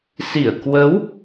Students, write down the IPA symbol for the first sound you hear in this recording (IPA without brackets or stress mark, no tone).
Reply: s